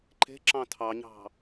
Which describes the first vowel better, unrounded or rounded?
unrounded